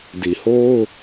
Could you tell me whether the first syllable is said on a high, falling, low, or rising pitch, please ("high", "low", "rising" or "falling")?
low